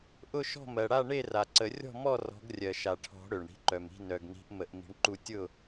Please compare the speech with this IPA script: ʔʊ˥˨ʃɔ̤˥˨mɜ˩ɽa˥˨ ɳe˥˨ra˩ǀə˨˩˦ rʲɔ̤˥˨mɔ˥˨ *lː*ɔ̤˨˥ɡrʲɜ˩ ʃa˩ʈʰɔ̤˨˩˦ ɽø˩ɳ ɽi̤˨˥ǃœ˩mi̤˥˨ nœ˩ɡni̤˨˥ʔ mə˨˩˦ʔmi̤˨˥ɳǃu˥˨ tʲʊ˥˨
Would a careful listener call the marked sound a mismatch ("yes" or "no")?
yes